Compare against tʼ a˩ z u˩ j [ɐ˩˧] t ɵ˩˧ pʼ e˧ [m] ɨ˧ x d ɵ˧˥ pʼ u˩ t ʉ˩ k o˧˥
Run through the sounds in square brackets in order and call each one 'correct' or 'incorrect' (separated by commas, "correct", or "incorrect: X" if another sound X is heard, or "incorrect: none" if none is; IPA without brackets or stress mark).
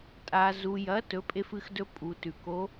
correct, incorrect: f